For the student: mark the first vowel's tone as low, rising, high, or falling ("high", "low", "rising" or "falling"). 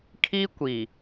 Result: high